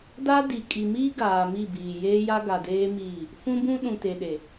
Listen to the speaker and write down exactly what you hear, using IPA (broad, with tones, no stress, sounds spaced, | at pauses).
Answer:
d a˦ d i˨ kʼ i˨ m iː˦ ɡ aː˨ m i˦˨ b iː˨ j eː˦ j a˦ ɡ a˨ d eː˦ m iː˦˨ | f ũ˦ b ũ˦ ɗ ũ˨ t e˨ ɗ e˨